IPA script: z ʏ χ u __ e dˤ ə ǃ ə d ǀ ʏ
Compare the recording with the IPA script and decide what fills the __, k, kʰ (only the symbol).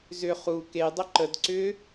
k